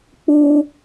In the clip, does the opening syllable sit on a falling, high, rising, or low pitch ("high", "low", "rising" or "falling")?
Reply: high